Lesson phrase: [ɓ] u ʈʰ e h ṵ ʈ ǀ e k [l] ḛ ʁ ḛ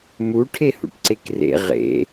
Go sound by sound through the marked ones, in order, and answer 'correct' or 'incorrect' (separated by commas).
incorrect, incorrect